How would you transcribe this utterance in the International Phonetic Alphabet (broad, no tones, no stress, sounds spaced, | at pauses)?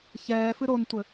ç ɛː f ɨ ɾ o n tʷ ɘ